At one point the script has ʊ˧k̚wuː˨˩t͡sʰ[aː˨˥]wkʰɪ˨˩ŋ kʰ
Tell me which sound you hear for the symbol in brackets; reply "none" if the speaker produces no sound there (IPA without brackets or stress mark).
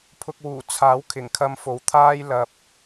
aː˨˥